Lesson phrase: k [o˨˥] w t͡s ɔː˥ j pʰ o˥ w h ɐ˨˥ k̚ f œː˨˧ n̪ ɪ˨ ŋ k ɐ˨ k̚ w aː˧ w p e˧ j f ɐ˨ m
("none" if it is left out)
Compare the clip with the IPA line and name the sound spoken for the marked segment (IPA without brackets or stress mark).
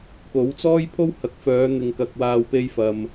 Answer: o˨˥